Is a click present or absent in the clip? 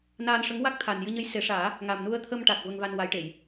absent